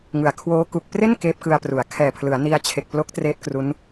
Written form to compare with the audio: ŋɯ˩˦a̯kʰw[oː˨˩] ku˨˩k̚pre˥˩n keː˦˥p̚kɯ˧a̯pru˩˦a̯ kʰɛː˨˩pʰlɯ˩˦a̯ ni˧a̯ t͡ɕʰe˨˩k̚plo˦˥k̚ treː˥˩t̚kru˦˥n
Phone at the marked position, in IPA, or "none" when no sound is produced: oː˦˥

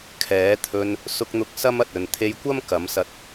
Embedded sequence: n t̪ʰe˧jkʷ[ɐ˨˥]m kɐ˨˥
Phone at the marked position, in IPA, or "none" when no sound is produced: ɐ˥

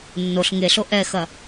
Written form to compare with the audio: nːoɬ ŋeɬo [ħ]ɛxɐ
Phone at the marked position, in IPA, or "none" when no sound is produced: ʔ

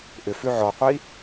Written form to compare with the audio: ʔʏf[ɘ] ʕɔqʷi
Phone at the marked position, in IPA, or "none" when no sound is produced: ʉ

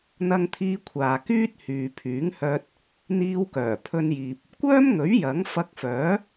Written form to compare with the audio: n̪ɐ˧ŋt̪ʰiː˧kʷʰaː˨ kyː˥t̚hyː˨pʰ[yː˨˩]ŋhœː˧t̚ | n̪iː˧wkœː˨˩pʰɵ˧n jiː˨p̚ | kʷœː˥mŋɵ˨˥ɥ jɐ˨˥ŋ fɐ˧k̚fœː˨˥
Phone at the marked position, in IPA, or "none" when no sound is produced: yː˨˥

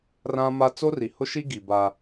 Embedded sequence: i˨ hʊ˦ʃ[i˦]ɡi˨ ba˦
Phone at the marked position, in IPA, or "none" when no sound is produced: i˦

